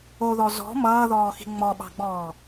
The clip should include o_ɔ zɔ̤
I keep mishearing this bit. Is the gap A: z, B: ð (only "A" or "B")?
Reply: B